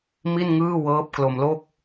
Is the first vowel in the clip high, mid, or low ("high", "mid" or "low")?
high